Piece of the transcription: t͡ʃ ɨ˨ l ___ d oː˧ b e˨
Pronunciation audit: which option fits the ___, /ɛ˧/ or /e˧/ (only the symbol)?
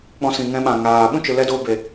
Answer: ɛ˧